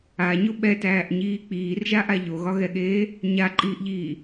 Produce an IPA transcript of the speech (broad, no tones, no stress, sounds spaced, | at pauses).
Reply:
a ɲ o ɓ ɛ t æː ʔ ɲ iː k͡p iː r ʒ a ʔ a ʎ o ɣ ɒ ɣ ɛ ɠ eː | ɲ a ǃʼ iː ʔ ʎ iː